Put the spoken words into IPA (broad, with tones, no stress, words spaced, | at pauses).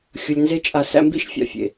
xʲʊ˧lʲnze˦t͡ʃʼa˧ sæ̰˧mbḭ˦ʃfʲa̰˨fʲḛ˨